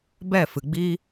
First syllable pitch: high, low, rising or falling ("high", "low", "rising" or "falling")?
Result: falling